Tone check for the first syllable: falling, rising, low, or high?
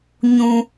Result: low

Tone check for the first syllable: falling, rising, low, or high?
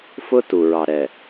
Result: high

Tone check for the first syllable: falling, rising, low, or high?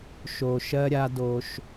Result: low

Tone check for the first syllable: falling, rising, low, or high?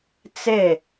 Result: falling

